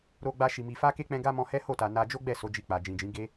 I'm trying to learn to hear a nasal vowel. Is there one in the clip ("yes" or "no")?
yes